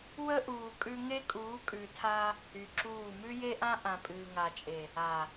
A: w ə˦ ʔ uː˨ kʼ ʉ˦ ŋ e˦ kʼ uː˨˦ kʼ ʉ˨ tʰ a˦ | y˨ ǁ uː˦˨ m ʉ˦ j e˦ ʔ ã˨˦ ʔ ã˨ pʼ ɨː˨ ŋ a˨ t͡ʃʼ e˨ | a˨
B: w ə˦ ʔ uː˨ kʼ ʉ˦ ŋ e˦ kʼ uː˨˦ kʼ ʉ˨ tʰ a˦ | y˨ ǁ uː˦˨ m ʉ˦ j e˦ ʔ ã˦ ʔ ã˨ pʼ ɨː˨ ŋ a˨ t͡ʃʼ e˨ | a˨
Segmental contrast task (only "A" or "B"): B